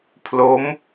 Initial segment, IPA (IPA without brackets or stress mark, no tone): pʰ